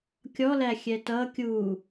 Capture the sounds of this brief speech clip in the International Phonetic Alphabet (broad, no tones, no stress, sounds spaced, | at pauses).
kʲ ɔ l æ xʲ ɛ t ʌ kʲ u